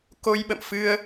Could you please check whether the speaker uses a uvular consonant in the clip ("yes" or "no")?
no